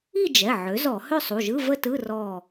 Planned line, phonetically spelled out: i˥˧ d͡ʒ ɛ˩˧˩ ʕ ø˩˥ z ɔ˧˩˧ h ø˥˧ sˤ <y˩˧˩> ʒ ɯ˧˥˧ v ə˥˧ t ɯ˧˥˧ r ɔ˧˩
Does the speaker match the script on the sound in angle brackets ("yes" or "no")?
no